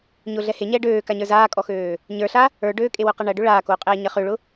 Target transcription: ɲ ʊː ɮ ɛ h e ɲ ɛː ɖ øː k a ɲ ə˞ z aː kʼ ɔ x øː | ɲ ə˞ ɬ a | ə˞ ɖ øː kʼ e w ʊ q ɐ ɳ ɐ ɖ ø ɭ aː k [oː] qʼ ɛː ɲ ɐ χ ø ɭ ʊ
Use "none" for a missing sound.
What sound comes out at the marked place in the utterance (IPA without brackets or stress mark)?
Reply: oː